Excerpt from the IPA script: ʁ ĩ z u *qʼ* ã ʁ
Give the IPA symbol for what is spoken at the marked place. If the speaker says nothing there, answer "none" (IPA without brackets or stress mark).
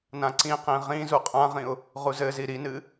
qʼ